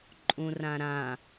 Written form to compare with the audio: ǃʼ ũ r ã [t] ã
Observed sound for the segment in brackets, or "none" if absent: ɾ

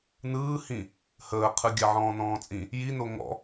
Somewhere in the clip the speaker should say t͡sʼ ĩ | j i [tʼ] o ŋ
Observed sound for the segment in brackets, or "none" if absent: n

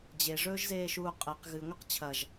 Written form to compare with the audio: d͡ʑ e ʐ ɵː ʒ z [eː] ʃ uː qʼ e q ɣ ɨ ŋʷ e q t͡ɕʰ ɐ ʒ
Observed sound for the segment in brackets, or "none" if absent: eː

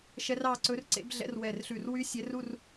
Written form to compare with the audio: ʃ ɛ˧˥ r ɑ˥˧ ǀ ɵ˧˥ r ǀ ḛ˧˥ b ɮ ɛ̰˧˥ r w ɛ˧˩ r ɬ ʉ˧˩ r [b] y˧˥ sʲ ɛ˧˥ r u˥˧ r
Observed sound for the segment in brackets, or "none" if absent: w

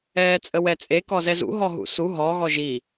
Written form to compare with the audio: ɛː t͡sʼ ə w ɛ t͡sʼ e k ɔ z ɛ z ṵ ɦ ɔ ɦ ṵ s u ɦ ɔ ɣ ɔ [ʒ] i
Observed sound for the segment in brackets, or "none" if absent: ʒ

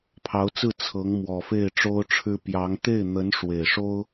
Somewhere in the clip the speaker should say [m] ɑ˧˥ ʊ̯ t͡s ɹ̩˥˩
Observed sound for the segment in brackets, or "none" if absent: pʰ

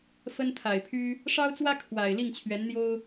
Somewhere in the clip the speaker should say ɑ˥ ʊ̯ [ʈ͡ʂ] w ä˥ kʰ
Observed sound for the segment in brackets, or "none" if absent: t͡s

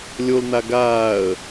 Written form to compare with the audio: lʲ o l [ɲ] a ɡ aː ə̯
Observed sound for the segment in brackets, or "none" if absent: n̪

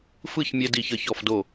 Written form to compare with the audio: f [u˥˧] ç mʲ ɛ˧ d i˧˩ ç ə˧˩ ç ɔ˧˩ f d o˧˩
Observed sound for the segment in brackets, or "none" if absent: ɯ˥˧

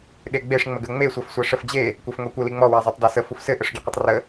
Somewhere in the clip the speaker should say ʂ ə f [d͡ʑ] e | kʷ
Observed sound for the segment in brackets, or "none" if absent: d͡ʑ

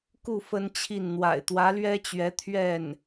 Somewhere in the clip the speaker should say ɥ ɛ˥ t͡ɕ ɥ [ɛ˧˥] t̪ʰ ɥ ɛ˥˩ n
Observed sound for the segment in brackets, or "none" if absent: ɛ˧˥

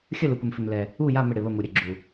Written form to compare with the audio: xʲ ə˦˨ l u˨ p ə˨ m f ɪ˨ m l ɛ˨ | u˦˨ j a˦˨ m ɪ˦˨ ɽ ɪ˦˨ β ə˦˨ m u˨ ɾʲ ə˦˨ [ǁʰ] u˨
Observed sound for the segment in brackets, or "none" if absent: ɡ͡ǁ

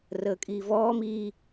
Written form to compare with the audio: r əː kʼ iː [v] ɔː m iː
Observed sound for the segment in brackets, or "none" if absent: v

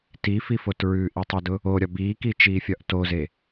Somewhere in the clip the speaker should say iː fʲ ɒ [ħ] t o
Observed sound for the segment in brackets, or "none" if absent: ʔ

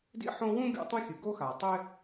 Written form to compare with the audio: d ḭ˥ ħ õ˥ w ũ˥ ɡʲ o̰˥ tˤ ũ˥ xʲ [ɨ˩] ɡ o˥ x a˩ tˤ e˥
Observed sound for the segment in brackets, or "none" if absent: ɨ˩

